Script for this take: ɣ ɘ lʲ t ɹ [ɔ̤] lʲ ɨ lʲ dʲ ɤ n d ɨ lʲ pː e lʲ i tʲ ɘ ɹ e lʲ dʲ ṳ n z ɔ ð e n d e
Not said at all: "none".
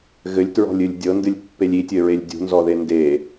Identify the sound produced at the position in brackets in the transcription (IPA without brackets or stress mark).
ɔ̤